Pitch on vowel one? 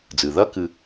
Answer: low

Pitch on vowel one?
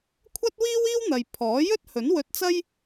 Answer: high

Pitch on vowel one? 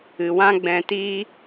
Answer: low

